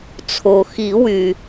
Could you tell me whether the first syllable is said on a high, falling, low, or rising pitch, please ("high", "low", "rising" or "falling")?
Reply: low